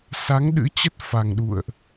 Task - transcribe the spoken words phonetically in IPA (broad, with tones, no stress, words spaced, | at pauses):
sa˨˦ŋɗɨ̰˧˥t͡ɕə˦˥t̚ fa˨˩ŋɗṵ˧˨ə̯ʔ